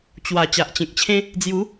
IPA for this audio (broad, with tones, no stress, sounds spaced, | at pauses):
t͡ɕ w a˨˩ t͡ɕ a˨ ʔ t͡ɕ ẽ˨ k̚ t͡ɕʰ ẽ˦ | d͡z j u˨˦